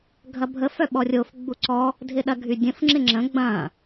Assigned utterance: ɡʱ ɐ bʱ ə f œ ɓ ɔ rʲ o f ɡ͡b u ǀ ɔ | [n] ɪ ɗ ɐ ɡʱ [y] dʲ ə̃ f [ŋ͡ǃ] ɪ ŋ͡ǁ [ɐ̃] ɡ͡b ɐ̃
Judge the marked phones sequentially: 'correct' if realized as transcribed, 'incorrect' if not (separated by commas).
incorrect, correct, incorrect, incorrect